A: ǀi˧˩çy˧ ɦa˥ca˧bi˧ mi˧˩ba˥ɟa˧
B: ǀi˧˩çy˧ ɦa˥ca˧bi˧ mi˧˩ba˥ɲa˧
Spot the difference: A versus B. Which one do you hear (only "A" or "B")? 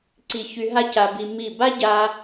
A